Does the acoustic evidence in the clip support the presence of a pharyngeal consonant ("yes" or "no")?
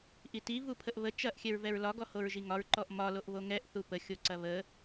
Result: no